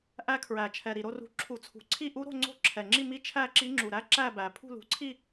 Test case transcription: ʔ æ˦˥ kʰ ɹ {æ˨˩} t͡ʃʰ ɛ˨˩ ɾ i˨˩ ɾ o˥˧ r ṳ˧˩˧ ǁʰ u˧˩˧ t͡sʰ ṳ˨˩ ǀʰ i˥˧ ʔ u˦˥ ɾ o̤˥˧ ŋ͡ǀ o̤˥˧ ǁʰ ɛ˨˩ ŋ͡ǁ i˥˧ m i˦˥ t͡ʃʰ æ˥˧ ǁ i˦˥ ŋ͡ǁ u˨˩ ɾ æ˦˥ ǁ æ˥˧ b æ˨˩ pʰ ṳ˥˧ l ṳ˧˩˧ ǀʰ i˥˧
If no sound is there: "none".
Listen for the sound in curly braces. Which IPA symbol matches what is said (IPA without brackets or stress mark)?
æ˨˩